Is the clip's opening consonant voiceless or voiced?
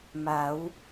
voiced